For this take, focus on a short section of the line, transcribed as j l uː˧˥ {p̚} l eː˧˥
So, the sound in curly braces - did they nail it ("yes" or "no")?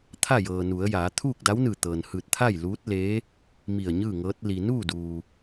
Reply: no